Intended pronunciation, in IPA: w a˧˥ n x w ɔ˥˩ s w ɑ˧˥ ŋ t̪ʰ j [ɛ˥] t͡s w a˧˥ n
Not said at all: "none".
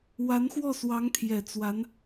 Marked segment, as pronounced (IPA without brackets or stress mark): ɛ˨˩